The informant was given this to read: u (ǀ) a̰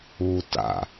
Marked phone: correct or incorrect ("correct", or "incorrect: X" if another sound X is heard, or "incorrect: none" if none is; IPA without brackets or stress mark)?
incorrect: t